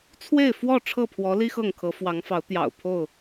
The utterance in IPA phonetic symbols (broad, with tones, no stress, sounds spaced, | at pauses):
t͡sʰ w e˥˨ ɪ̯ f w ɔ˥˨ ʈ͡ʂʰ ɤ˥˨ pʰ w ɔ˨˦ l i˦ x ɤ˥˨ ŋ kʰ ɤ˨˦ f w ɑ˨˦ ŋ f ɑ˨˦ ʊ̯ t̪ j ɑ̰˨˩ ʊ̯ pʰ o˥˨ ʊ̯